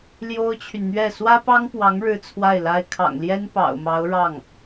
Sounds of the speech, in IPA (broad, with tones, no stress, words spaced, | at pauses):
ljo˥ʊ̯t͡ɕʰy˨nn̪ɥɛ˥˩ swä˥pɑ˥ŋpwɑ˧˥ŋ ɻɻ̩˥t͡sʰwa˥˩ɪ̯la˥ɪ̯ kʰɑ̰˨˩ŋljɛ˥n pɑ̰˨˩ʊ̯mɑ˧˥ʊ̯ ɻɑ˥˩ŋ